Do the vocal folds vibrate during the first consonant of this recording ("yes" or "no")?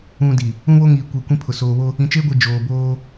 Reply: yes